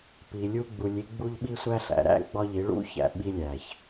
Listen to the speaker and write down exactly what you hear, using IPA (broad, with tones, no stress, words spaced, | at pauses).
pi˨lʲu˦ ɡ͡bu˨lʲi˦ɡ͡bu˦ʎ ɓi˦sʷæ˦ɬæ̰˨ ɾæ̰˦ ɡ͡bɒ˦ʎi˨˦ɭṵ˦çæ̰˨ ɓi˦lʲæ˨ç